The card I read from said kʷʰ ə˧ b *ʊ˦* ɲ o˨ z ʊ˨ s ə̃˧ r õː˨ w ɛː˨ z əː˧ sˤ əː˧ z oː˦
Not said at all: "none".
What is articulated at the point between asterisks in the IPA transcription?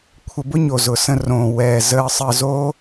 ʊ˦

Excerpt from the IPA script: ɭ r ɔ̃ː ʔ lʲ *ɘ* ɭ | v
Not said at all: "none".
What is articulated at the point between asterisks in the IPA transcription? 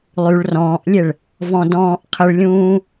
e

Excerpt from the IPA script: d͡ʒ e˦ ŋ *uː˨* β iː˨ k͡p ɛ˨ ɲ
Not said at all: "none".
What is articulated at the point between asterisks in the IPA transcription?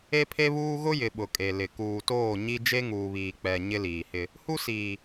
uː˨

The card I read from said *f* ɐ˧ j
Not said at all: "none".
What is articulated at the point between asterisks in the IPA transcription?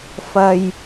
f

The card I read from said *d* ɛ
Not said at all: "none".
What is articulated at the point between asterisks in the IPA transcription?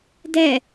d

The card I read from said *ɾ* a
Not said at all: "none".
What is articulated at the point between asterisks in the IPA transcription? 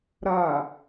ɾ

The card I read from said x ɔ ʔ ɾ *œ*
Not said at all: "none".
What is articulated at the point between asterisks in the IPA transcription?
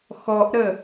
ə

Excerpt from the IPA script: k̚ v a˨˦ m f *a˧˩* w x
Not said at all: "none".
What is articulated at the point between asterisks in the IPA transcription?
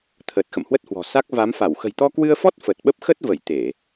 a˧˩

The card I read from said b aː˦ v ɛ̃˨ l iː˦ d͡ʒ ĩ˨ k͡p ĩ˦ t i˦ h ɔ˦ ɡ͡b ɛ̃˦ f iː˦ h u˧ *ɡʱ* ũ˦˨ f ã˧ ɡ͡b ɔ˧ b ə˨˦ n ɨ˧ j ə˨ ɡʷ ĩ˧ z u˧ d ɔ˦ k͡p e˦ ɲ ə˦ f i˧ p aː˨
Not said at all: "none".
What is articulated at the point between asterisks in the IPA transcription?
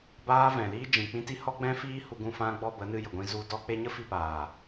ɡ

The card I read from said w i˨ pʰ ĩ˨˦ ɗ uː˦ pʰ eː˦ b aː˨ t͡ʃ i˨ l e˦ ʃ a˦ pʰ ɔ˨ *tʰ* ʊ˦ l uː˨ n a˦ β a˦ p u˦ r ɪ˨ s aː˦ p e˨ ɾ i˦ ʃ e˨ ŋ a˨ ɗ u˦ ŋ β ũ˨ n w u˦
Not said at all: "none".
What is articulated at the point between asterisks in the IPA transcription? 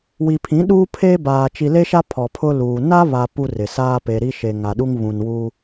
pʰ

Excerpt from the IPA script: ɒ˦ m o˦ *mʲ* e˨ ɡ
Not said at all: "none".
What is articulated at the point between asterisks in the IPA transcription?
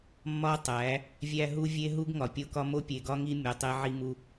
pʲ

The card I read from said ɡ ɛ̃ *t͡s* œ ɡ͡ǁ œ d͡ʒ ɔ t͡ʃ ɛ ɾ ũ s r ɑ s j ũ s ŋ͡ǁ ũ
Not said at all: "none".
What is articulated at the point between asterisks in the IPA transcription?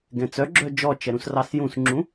t͡s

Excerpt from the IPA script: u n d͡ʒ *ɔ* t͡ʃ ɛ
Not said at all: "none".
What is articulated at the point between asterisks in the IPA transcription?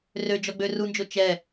o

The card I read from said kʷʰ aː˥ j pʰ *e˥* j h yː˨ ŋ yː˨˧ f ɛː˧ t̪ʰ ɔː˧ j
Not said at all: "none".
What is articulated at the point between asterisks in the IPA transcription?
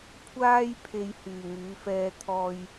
e˧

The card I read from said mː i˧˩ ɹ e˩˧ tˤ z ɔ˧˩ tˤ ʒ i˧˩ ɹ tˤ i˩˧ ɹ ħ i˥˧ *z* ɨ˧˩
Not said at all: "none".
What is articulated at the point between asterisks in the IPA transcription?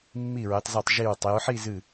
z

